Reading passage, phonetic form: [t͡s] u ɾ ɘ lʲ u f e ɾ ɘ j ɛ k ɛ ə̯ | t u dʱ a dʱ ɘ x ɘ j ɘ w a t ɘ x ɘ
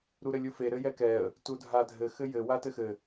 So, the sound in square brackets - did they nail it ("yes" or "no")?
no